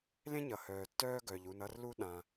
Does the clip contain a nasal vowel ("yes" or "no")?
yes